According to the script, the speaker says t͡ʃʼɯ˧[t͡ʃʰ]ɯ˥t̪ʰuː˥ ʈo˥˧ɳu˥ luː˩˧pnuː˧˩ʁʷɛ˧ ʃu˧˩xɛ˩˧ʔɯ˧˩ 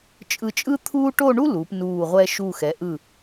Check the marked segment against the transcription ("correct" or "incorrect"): incorrect